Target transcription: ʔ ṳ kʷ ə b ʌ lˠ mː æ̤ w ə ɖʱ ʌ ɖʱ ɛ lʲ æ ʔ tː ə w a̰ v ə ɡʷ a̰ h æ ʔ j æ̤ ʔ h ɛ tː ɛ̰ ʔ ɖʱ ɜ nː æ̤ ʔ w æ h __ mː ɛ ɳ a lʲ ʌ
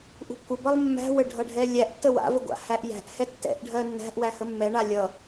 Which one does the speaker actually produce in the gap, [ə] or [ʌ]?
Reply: ə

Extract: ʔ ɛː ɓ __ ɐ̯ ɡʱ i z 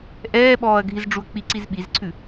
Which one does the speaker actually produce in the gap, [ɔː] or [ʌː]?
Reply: ɔː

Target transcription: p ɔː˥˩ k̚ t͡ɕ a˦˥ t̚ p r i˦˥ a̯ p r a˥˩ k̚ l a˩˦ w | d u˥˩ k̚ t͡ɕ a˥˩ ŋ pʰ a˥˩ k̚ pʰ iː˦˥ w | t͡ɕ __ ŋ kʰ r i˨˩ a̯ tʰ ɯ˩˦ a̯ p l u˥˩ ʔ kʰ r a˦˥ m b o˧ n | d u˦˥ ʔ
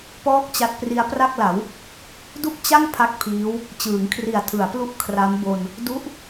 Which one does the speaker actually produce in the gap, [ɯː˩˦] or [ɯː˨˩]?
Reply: ɯː˩˦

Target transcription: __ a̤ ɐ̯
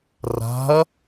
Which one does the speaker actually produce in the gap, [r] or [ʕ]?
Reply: r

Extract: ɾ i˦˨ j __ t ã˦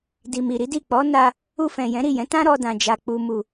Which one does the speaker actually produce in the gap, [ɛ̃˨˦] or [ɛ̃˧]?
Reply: ɛ̃˨˦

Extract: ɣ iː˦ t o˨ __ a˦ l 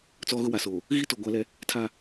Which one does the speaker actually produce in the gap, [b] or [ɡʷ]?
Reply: ɡʷ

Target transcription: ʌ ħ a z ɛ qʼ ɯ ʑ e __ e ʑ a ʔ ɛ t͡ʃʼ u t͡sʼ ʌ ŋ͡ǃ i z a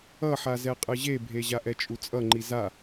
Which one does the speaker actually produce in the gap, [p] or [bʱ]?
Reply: bʱ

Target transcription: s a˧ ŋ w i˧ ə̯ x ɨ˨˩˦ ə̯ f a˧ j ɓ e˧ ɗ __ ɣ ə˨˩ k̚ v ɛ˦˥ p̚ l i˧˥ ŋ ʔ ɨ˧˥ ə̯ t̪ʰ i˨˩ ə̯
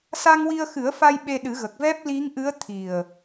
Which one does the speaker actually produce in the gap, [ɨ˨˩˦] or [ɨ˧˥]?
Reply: ɨ˨˩˦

